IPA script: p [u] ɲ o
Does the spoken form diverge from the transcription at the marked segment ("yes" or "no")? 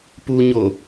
no